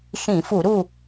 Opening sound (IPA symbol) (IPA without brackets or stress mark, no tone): ʃ